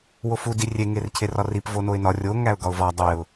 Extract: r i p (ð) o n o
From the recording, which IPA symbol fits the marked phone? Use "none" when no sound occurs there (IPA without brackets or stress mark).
v